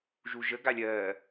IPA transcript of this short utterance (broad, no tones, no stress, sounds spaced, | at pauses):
ʒ u ʒ ə ɡ a lʲ ɜ